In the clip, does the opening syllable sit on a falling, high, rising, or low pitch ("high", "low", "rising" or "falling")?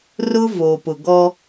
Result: high